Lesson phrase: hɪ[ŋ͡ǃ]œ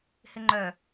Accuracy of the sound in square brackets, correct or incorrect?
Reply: correct